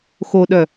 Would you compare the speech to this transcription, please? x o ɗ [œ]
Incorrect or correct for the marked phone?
correct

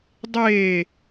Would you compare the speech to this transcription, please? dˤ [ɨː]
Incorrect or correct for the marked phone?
incorrect: eː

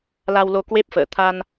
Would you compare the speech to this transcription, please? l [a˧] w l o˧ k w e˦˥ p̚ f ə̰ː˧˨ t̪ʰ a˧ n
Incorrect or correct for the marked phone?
correct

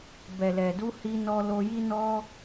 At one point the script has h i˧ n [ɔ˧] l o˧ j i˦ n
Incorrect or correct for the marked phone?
correct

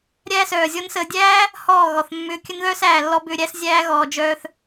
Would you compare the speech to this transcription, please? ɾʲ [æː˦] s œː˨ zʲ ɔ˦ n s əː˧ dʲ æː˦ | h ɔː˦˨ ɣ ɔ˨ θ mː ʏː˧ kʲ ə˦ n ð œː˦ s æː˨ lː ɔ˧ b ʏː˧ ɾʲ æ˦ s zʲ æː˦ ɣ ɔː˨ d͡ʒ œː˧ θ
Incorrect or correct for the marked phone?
correct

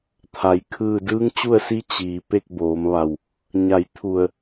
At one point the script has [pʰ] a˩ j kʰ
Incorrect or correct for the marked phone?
incorrect: t̪ʰ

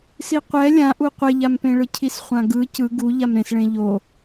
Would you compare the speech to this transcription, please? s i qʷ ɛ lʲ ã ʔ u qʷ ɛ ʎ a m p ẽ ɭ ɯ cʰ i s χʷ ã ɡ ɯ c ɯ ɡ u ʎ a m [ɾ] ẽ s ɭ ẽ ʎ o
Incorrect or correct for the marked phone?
correct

